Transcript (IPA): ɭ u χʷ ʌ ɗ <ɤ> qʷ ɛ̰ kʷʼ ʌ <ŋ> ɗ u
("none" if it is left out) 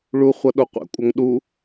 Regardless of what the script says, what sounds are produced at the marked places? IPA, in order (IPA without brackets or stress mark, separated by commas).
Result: o, ŋ